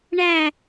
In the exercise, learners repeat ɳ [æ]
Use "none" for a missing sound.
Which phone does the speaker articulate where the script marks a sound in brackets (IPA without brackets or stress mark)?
æ